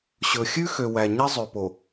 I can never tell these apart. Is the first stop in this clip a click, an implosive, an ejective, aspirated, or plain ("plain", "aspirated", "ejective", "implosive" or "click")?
plain